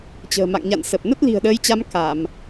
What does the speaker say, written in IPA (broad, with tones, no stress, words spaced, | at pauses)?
t͡ɕə̤ː˨˩ma̰˧˨ŋɲa̰˧˨n sə˨˩p̚ nə˦˥t̚li̤˨˩ə̯ɗəː˨˦jt͡ɕa˨˦m ka˧˩˨m